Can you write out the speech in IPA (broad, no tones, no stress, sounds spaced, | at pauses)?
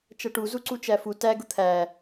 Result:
t͡ʃ ʌ ʈ u z u ǀ u t͡ʃ æ f u t æ ɡ ʊ t̪ʰ æ